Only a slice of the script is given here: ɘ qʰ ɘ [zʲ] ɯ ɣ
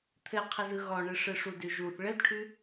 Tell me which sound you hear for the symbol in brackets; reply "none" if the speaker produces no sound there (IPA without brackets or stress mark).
z